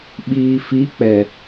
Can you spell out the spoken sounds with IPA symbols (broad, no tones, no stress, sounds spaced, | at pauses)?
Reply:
ɓ iː f i k͡p ɛ